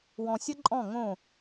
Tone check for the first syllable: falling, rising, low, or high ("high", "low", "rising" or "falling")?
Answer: low